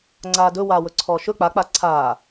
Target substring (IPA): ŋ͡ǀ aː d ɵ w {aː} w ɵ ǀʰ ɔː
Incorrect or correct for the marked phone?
correct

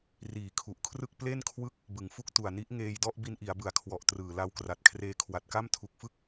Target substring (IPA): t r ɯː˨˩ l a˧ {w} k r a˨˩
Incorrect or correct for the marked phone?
correct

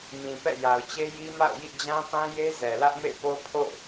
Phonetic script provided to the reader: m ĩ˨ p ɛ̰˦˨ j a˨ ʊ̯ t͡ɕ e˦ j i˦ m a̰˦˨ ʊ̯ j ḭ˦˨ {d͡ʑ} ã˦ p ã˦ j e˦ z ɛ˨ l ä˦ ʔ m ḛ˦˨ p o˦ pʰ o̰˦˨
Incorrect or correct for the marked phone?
correct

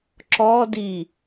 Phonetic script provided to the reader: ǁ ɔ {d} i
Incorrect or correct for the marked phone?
correct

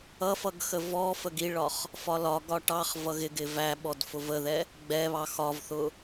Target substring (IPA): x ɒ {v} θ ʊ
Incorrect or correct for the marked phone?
correct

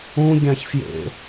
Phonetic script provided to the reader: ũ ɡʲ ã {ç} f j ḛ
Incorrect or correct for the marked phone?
correct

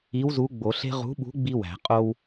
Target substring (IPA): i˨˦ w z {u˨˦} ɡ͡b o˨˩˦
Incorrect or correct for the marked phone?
correct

